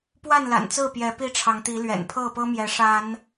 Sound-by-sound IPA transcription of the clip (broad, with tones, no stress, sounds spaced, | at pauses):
p w a˥˨ n l a̰˨˩ n t͡s ɹ̩˥˨ p j ɛ˨˦ p i˦ ʈ͡ʂʰ ɑ˨˦ ŋ t̪ i˨˦ l ɥ ɛ̰˨˩ n pʰ ɤ˥˨ p ɤ˦ m j ɛ˨˦ ʂ a˨˦ n